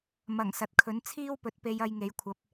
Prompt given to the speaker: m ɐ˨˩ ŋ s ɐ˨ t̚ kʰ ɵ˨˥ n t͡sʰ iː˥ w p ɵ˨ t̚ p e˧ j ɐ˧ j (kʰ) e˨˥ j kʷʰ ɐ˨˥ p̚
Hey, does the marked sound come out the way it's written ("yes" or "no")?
no